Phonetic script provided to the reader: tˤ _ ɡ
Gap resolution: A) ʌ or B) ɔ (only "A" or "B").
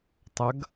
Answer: A